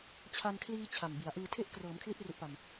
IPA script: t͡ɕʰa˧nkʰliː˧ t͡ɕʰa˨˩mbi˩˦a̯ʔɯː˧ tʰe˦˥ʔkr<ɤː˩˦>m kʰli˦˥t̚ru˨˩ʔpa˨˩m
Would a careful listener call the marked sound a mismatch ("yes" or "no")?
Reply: no